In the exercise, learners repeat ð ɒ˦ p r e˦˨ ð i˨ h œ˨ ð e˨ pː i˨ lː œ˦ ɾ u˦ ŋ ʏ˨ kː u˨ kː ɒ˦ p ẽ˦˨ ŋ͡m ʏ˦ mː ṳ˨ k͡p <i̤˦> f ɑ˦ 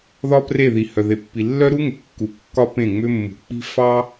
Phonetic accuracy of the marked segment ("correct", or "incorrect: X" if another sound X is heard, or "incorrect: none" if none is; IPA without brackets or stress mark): correct